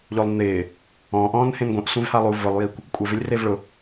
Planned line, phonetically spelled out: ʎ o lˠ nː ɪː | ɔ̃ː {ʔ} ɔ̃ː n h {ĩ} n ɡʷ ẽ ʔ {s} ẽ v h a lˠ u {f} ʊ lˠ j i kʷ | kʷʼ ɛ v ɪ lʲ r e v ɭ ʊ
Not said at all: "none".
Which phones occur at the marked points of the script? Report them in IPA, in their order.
ʔ, ẽ, sʷ, v

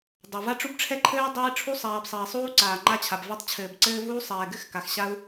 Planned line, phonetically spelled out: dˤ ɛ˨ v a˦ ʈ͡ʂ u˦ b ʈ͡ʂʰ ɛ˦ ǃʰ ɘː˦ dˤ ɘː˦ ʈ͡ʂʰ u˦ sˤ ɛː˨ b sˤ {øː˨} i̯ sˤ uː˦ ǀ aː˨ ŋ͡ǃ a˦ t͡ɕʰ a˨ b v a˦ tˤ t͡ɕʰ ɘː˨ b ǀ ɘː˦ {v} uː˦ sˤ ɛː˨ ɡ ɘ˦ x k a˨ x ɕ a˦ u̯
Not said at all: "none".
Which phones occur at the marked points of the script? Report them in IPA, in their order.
ɘː˨, v

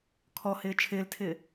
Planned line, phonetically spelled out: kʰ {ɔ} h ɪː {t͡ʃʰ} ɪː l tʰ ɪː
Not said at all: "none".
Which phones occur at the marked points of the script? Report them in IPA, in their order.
ɔ, t͡ʃʰ

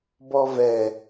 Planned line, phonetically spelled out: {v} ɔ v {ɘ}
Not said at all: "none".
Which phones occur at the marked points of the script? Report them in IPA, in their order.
b, ɛ

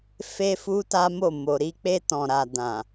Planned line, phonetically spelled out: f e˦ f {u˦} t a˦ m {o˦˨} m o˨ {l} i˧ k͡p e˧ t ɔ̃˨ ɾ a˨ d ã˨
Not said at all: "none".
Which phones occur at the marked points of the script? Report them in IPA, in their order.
u˦, o˦˨, ɾ

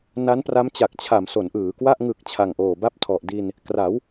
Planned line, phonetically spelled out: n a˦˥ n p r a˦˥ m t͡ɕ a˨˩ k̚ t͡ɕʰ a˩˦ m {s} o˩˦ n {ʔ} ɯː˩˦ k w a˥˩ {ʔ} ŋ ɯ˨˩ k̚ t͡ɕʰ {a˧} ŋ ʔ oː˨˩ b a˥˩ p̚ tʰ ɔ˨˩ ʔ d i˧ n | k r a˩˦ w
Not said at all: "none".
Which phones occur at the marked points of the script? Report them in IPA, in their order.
s, ʔ, ʔ, a˨˩

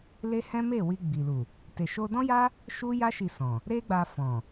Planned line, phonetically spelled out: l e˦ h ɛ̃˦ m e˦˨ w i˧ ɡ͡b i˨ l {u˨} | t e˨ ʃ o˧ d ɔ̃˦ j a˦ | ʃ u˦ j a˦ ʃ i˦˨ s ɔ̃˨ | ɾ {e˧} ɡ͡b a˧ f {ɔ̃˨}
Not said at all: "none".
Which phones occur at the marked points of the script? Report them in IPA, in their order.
u˨, e˦, ɔ̃˨

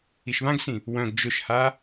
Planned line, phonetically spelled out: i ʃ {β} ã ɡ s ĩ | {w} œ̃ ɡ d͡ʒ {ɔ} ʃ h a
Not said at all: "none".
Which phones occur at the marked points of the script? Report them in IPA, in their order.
β, w, ʊ

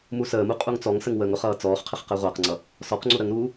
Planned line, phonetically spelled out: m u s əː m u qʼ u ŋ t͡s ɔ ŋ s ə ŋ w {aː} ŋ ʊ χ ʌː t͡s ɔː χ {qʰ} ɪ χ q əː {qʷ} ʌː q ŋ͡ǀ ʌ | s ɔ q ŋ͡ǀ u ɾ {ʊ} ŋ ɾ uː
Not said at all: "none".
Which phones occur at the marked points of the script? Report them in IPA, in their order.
əː, qʰ, ʁʷ, ə

